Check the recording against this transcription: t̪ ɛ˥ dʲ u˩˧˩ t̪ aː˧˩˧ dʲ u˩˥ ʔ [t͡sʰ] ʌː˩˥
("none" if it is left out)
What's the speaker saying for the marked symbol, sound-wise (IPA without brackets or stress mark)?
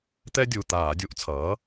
t͡sʰ